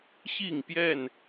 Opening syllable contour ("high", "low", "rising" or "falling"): falling